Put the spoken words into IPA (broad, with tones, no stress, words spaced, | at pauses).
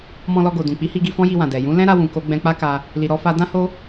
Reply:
mɔ̃˧lɔ˧ɡo˨ dũ˨k͡pi˨˦hi˧ɡi˧ fɔ̃˦ji˧wã˨ dɛ˨ jũ˨˦ lɛ̃˦ɾa˧ wũ˨ko˧ ɡ͡bɛ̃˧k͡pa˦ka˧ | li˨ɾɔ˧fa˧ dã˦ho˦